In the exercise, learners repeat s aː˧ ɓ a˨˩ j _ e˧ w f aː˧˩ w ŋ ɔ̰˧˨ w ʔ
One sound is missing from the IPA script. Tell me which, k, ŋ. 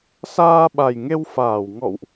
ŋ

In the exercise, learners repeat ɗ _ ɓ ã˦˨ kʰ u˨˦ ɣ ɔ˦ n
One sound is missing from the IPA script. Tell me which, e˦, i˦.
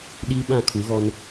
i˦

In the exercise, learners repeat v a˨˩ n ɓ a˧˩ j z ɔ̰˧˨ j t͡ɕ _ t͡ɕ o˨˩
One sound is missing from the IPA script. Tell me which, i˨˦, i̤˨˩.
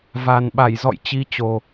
i˨˦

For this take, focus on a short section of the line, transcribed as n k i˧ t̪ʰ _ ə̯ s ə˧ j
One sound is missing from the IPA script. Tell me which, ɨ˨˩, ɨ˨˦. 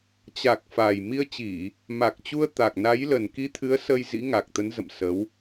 ɨ˨˦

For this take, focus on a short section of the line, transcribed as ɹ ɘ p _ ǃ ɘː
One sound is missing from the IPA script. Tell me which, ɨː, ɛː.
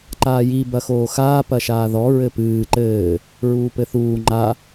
ɨː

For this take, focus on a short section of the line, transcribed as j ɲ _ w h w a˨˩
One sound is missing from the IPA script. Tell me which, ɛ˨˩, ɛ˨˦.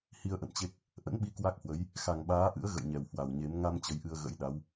ɛ˨˩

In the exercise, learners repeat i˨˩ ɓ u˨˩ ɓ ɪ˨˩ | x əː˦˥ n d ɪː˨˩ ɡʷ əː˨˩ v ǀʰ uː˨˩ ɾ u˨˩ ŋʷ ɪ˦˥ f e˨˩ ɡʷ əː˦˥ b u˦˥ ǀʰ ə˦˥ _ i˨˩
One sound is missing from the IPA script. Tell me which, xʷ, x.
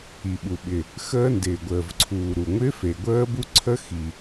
x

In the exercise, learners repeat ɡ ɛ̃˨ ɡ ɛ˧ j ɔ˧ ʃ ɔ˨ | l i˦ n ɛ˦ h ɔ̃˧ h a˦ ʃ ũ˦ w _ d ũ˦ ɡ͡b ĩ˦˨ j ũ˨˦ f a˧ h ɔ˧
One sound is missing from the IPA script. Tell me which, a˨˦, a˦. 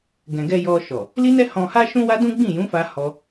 a˦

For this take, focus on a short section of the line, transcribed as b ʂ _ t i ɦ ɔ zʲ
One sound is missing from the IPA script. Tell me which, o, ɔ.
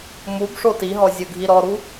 o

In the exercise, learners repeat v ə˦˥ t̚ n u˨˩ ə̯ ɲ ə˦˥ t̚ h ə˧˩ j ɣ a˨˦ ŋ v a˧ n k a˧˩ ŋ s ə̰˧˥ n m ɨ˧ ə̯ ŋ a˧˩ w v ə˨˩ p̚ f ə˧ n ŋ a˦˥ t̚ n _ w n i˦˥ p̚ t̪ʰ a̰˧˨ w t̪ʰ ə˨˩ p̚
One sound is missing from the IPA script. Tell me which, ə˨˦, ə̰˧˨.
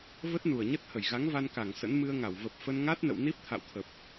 ə̰˧˨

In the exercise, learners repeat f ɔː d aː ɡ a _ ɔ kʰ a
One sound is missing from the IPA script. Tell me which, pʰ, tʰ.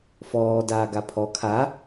pʰ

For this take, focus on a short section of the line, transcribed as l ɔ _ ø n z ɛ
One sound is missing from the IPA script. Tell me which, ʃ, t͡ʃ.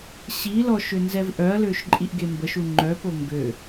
ʃ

